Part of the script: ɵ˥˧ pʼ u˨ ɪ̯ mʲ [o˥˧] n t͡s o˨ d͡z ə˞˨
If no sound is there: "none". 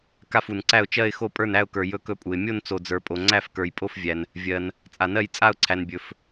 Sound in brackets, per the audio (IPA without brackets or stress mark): o˥˧